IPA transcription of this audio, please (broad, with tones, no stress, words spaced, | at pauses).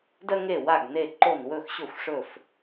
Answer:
dɜ˦ŋe˦˨ wa˦˨ɡne˦˨ǃo˦˨n wɵ˦˨xɕɵ˦˨xʷʂɵ˦˨f